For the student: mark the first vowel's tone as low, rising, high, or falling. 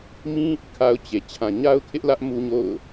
high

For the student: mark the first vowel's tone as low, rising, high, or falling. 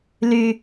low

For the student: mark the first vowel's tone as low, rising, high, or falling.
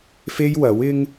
high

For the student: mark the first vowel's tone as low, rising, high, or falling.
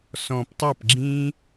low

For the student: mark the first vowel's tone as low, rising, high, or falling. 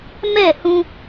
falling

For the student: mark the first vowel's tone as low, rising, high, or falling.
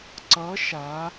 rising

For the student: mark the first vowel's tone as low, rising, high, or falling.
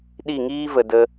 falling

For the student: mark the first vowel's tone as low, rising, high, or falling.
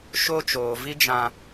high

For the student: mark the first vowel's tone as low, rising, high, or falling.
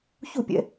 falling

